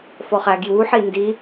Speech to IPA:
f ɔ χ æ ɡ j u ħ i n d i

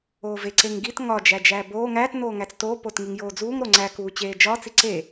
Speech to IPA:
oː v e ǀ e ŋ ɡ i t ŋ ɒ d͡ʒ æ d͡ʒ æː b oː ŋ æ t n oː ŋ æ t͡s t oː p o t ŋ i ŋ j oː d͡z uː ŋ ɾ o ŋ͡ǀ æ k uː t͡ɕ eː d͡ʒ ɒ t͡s i ǀ e

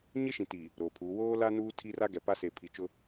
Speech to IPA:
ɲ ɪ˦ ʃ ĩ˨ t i˨ | ɾ oː˨ pʰ uː˨˦ w oː˦ l a˦ n uː˦ tʰ i˦ r a˦ ɡ ɛ˨ p a˦ s e˨ pʰ i˨ t͡ʃ ʊ˦

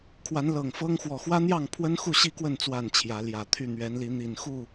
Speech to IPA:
kʰ w a˨˦ n l ɤ˨˩ ŋ f ɤ˦ ŋ x w ɔ˨˩ x w ä˦ n̪ j ɑ˥˨ ŋ pʰ w ə˦ n x u˥˨ ɕ i˥˨ k w ə˥˨ n t͡s w a˥˨ n t͡ɕʰ j ä˨˦ l j ä˨˩ t̪ʰ y˥˨ n̪ ɥ ɛ˨˦ n l i˨˦ n̪ i˨˩ n x u˥˨

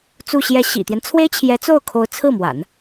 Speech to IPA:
t͡s u˥˧ ɕ j ɛ˥˩ ɕ ḭ˨˩ t̪ j ɛ˦ n t͡sʰ w e˥ ɪ̯ t͡ɕʰ j ɛ˧˥ t͡s o˥˩ ʊ̯ kʰ o˧˥ ʊ̯ t͡sʰ ɹ̩˥˩ m w a̰˨˩˦ n

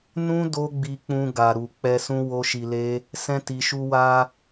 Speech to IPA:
n ũ˦ d o˦ ɡ͡b i˧ k͡p ũ˧ ɡ a˨ ɾ u˨ k͡p ɛ˧ s ũ˦ w o˦ ʃ i˧ l e˦ | s ɛ̃˦ t i˧ ʃ u˧ w a˧

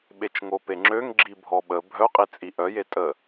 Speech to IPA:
ɓ e t͡ʃ ŋ o p e ŋ͡ǁ ø ŋ ɡ͡ǁ i bʱ ɔ ɓ ə bʱ œ qʼ i t͡sʼ i ʔ œ j e tʼ ə

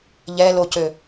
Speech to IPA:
ʎ ɛ l o c ø

